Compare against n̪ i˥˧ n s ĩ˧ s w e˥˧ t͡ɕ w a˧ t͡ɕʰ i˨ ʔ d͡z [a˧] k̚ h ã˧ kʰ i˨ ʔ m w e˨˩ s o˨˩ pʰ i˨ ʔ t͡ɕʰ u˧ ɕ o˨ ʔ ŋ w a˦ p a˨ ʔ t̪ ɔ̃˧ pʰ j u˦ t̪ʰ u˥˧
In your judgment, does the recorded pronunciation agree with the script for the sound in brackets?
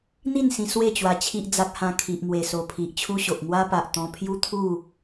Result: no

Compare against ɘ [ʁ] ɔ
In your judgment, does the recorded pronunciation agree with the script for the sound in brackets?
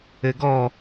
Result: no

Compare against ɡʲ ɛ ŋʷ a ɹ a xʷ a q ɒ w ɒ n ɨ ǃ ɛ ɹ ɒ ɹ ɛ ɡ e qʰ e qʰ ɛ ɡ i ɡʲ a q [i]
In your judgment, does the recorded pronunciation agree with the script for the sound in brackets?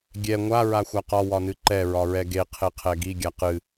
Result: no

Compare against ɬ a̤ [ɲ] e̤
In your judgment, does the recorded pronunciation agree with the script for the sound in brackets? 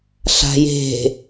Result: no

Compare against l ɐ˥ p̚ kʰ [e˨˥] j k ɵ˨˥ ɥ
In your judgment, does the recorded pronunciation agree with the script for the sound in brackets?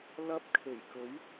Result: no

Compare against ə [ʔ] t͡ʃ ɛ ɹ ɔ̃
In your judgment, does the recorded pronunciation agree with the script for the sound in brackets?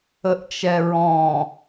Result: yes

